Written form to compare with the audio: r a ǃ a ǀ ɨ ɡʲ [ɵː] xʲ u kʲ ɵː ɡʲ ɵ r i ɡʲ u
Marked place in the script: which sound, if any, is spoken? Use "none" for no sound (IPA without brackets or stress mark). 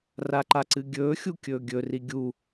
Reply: ɵː